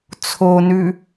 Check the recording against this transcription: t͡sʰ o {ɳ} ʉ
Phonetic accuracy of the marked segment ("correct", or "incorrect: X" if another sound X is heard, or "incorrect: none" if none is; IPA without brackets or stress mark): incorrect: n